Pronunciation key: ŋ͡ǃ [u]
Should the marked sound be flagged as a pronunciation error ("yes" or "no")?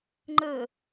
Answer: yes